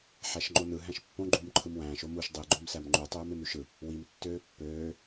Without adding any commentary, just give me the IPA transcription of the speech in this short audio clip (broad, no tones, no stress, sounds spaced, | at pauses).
ħ æ ʃ ŋ͡ǃ o n ɯ ɦ æ̃ ʃ pː õ ɡ͡ǃ uː m ǃʰ ɯ m w æ̃ː ʃ o m u ʃ dˤ i ɡ͡ǃ o m s æ m ŋ͡ǃ u tˤ øː m e m ɾ y ʃ ɯ | w i m tː øː pː øː